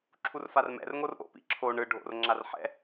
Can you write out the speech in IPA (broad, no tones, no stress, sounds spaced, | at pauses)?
ǁʰ u r f a r m ɛ̰ r ŋ o r ʔ o̰ p ḭ ǁʰ o ɳ ɯ ɖʱ o̰ r ŋ͡ǁ a r ħ ɛ̰